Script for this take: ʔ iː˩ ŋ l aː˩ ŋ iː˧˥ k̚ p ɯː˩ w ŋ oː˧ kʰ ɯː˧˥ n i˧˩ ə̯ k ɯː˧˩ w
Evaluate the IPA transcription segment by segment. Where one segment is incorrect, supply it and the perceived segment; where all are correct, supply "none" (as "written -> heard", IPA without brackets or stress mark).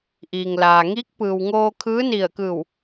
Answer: none